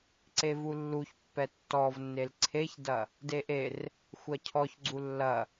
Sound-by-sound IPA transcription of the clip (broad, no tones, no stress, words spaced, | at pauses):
ǀevulːuç pːɛtːɔvnːel ǀʰeçdɐ | deʔer | xʷɜcʰɔçɡ͡ǀu lːɐ